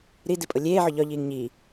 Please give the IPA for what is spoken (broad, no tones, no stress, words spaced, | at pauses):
ɾi dipʼʊlʲeːʕʊ ʎɒʎiːŋ ɲi